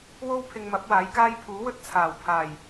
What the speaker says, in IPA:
w o˥ w pʰ ɪ˧ ŋ m ɐ˨˥ p̚ w aː˨˥ j k aː˥ j pʰ uː˨˥ w ɵ˥ t̚ t͡sʰ aː˨˩ w pʰ aː˨˩ j

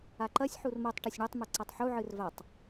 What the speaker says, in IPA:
a ǃ ɐ sʲ ħ u r m o tˤ ʈ ɐ sʲ ɳ ɨ tˤ m ɨ ǀ a tˤ ħ u ʕ ɨ r v a tˤ

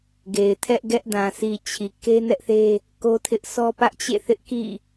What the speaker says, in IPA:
ɡ e˨ ɪ̯ tʰ ɛ˦ ʔ ɡ ɛ˦ ʔ d ã˨ sʰ i˨ t͡ɕʰ i˨ k e˦ n ɛ˦ ʔ θ e˦ | k o˦ tʰ ɪ˦ ʔ sʰ ɔ˦ p ä˦ ʔ t͡ɕ ḛ˦˨ θ ɪ˦ ʔ k ḭ˦˨

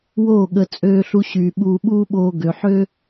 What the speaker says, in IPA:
w oː˦˨ ɠ ə˧ t͡sʼ øː˧ ɬ u˧ ɕ yː˨ ɓ uː˧ ɓ uː˦ ɓ oː˧ ɡ ø˨ ħ ø˦

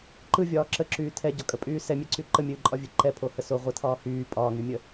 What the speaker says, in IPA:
ǃ ɯ vʲ ɒː ǁ ə ǁ yː tʰ ɛ ɟ ɒ kʼ ə pʼ yː s ɛ mʲ ɛ ǀ y ǃ ə mʲ ɨː ǃʼ ɒ vʲ ɛ ǃ ɛ pʰ o h ə s o ʁʷ ə tʰ ɒː h yː pʼ ɒː ŋ y mʲ ə

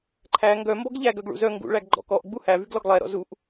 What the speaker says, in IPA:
ǃʰ æ ŋ ɡ œ m b ɔ ɡ ʎ æ ɡ œ ɡ ɭ ṵ z œ ŋ ɡ ṵ ɭ æ ɡ ɡ͡ǃ ɔ̰ k ɔ ʔ ɡ͡b u h æ v y ɡ l ɔ ɡ lˠ ɛ ɾ ɔ̰ z u ʔ

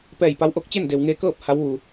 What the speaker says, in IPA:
p ɛː˧˩ j p a˧˥ w ʔ o˧˥ k̚ t͡ɕ e˥˨ n d e˩ w ŋ e˧ k ɤː˥˨ p̚ h a˧˥ w ʋ u˩

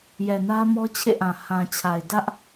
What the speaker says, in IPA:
j ɛ˨ n ä˦ m ɔ˦ t͡ɕʰ ḛ˦˨ ʔ ã˨ h ã˨ t͡ɕʰ a˨ ɪ̯ d ä˦ ʔ

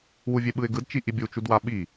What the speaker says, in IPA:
w u vʲ e ɓ ɯ ɪ̯ ɡ ɯ d t͡ʃ i ʔ i bʲ u t͡ʃ u d w a ɓ i

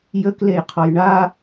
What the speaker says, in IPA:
j ə k l e j qʰ ɔ j ɳ a

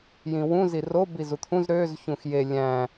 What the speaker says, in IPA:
j ĩ w ũ z i r o b i z u t̪ʰ ũ z ɾ ø z ç ũ x j e lʲ æ̃

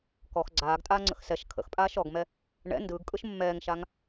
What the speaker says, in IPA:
k ɔ x ɡ͡ǀ aː ɡ tʼ aː ŋ͡ǀ ə̰ x s ɛ ʃ kʰ ə̰ x pʼ aː ʃ ɔ ɡ m ɛ | ɳ ɛ̰ n d ɯː ɡ kʼ ɯ ʃ mː ɛː ŋ ʃ a ŋ

